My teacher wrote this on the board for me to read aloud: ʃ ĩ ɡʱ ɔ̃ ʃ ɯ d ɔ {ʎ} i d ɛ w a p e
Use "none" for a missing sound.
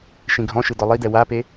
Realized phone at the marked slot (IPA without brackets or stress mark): lˠ